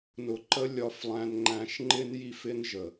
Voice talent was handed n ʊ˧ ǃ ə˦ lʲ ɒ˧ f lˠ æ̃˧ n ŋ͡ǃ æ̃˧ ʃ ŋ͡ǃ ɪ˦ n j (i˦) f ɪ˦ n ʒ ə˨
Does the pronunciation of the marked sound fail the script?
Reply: no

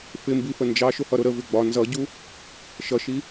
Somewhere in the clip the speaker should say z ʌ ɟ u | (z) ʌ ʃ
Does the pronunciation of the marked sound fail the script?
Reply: yes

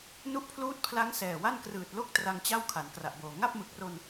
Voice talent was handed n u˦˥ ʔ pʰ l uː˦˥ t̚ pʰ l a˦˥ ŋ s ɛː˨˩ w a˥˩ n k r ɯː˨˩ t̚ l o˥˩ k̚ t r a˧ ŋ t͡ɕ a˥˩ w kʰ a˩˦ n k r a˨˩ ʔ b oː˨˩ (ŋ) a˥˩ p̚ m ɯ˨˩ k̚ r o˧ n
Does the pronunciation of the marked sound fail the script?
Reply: no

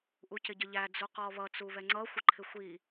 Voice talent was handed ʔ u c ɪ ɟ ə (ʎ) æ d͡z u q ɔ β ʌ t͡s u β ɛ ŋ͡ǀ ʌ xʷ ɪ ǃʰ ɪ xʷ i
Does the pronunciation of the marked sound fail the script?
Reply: no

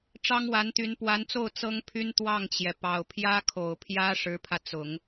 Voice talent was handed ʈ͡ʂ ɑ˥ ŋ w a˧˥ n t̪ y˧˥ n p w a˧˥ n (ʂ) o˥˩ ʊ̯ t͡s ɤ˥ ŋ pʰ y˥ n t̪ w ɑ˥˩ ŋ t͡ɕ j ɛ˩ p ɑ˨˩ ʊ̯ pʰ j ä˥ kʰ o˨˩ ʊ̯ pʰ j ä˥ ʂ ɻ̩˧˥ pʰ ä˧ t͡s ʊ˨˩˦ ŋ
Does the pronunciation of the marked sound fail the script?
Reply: yes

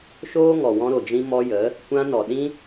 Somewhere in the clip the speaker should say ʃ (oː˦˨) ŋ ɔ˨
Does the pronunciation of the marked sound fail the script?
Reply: yes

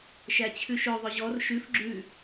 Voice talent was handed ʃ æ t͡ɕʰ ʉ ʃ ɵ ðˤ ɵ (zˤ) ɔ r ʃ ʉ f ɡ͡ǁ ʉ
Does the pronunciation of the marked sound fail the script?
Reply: yes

